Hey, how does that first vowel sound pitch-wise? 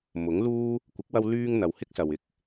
rising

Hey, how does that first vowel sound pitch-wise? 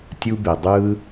high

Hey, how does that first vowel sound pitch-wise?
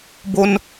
high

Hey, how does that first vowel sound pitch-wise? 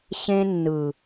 high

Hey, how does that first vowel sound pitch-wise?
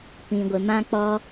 low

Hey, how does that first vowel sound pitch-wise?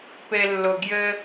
low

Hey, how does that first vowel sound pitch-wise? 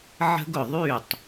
high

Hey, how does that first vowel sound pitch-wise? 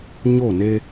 falling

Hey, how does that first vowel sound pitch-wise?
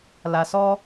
low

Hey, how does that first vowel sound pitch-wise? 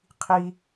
high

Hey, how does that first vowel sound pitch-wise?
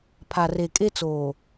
low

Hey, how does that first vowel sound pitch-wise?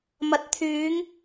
rising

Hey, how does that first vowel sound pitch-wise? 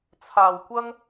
low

